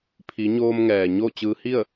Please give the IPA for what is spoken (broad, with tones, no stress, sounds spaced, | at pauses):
pʰ i˩˧ ɲ oː˧ m ŋ ɛː˩ ɲ o˥˨ t͡ɕ ɯː˧ h i˥˨ ə̯